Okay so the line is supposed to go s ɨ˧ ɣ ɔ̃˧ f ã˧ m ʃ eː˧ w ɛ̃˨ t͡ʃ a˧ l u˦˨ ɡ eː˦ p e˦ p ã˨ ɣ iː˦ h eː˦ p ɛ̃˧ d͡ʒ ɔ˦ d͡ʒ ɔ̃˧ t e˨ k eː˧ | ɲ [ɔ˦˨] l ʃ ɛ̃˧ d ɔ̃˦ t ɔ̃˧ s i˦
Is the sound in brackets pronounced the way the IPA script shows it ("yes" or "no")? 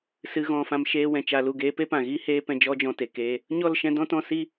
yes